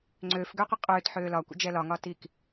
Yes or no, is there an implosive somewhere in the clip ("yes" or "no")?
no